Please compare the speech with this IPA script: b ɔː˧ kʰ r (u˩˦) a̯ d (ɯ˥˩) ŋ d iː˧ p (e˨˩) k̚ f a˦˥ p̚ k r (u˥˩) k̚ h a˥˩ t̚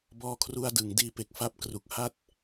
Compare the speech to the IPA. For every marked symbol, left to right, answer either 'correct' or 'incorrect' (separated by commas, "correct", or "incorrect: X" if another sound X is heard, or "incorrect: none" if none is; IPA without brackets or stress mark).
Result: incorrect: u˧, incorrect: ɯ˩˦, correct, incorrect: u˨˩